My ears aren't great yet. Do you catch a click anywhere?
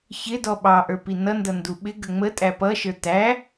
no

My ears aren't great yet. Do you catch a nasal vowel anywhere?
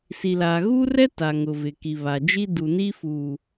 no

